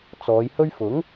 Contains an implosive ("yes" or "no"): no